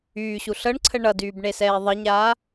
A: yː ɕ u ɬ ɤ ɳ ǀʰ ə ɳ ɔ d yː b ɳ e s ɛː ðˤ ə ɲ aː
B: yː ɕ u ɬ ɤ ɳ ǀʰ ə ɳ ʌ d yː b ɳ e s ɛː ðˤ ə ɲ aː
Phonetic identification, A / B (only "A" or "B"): B